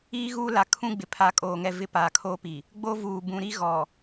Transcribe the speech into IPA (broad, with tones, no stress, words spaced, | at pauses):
iː˦ɣuː˦ la˨kʰũ˦ɡ͡bɪ˨ pʰa˨˦kʼoː˨ŋɛ˦˨vɪ˦ paː˨kʰoː˦pi˨ | ɡ͡bo˦vuː˨ bũ˨ɾi˦ɣɔ˨